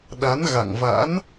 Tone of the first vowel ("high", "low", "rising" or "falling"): rising